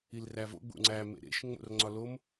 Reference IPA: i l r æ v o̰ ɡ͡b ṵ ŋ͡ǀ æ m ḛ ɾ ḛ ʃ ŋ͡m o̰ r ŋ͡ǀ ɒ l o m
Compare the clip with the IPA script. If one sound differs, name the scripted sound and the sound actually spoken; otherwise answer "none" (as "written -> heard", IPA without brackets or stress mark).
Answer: none